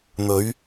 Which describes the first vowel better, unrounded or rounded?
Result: rounded